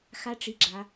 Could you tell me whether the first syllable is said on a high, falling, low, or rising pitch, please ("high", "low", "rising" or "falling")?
high